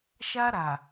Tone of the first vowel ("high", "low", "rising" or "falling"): high